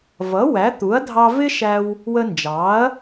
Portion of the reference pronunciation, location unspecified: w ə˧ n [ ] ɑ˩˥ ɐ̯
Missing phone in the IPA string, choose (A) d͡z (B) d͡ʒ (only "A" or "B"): B